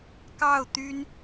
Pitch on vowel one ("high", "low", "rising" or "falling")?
falling